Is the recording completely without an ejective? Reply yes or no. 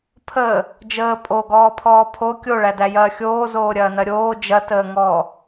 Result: no